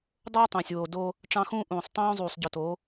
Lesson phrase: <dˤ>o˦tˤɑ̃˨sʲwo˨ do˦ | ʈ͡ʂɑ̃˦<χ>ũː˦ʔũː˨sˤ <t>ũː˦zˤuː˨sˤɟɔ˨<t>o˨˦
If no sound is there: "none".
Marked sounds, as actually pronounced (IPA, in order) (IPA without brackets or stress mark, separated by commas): dˤ, x, tˤ, t